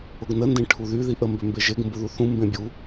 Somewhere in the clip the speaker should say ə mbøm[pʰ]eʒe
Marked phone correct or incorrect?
incorrect